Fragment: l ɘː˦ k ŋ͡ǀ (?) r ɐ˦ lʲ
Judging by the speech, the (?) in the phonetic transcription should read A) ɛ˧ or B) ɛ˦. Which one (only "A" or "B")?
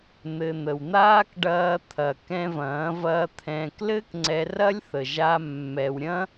A